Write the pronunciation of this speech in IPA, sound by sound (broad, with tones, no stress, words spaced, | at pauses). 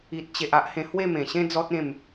i˨t̚t͡ɕe˨ʔ a˦ʔhẽ˧ hwe˥˧mẽ˨˩ɕẽ˦ d͡zɔ˦t̚ ẽ˥˧m